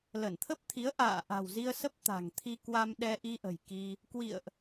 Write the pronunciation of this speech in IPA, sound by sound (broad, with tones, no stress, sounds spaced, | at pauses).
l ə˧˩ n t̪ʰ ə˦˥ p̚ t̪ʰ i˨˦ ə̯ ʔ a̰ː˧˨ ʔ a̤˨˩ w z i˧ ə̯ s ə˦˥ p̚ t̪ a̤˨˩ ŋ t̪ʰ i˧ k w a˧ m ɗ ɛ˧ ʔ i˧ ʔ ə̤˨˩ j k i˧ | k w ḭ˧˨ ə̯ ʔ